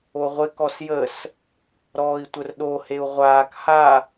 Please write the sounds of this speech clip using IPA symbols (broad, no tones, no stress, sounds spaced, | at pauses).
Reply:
o ʁʷ ɪ k ɔ s j ə s | ɾ ɔː i̯ tʷ ə r ɗ o h e u̯ ʁʷ aː k h a